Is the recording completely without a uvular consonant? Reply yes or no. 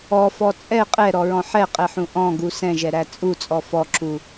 no